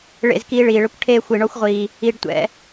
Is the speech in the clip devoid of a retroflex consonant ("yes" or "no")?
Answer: no